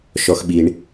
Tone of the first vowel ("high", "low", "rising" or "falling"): low